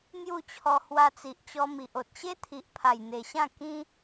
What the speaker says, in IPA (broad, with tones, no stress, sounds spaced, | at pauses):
n̪ j u˥˧ t͡ɕʰ ɔ˧ h w a˧ t͡s i˨ ʔ t͡ɕ ɔ˧ m i˨ ʔ o˨ t̚ ɕ e˦ t̪ʰ i˨ ʔ pʰ a˨˩ j n̪ e˨˩ ɕ ã˥˧ k ĩ˦